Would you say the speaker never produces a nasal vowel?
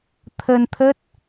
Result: yes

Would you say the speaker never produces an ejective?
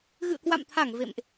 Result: yes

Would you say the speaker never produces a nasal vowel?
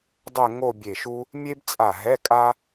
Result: yes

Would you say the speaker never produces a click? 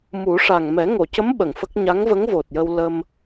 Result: yes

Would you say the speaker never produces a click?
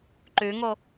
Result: no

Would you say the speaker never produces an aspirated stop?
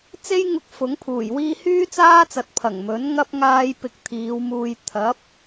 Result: no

